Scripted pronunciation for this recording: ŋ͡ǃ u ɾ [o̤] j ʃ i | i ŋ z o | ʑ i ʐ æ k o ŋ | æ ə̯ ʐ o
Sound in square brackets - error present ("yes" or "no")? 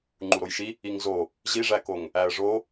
yes